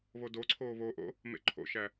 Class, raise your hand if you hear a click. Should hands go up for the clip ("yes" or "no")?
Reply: yes